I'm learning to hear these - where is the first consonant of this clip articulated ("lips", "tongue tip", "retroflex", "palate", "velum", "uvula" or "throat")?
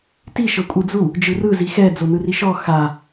tongue tip